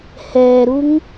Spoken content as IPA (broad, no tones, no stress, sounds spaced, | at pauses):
h ɛː ɾ u ŋ